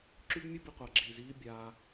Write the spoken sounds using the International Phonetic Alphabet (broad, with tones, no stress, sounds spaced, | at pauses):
ǁ y˦ b mʲ u˦ b i˧ qʷ a˨ ɡ͡ǁ iː˨ z iː˦ bʲ aː˧